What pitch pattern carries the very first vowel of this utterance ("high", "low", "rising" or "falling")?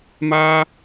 high